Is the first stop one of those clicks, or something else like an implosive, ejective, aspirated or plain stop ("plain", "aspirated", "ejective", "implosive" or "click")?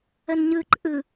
click